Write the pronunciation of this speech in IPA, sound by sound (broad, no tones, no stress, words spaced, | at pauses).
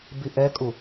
biʔɛkʼu